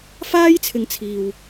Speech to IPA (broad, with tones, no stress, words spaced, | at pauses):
faː˥jt͡sʰɪ˨ŋ t͡sʰiː˨w